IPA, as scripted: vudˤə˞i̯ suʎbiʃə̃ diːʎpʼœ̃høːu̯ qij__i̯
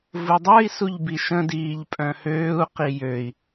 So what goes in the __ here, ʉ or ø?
ø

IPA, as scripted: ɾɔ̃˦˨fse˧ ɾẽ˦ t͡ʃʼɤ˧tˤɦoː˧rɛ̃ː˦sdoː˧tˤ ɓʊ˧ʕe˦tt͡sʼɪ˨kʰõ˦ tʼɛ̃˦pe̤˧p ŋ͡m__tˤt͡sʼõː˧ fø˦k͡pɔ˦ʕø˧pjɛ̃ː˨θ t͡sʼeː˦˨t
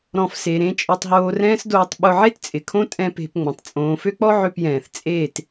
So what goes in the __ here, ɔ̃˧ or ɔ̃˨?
ɔ̃˨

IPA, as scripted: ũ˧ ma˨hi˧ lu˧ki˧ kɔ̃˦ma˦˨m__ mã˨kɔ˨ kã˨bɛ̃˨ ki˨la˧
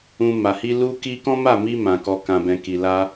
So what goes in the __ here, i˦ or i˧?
i˧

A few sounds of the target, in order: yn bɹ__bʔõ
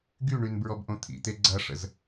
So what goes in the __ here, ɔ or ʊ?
ɔ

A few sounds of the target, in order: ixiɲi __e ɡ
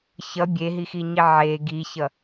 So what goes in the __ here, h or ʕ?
ʕ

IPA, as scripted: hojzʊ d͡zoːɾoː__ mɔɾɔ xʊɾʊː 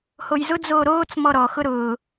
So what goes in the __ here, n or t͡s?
t͡s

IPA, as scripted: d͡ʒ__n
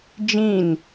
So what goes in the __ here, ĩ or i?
ĩ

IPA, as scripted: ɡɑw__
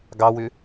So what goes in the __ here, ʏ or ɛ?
ʏ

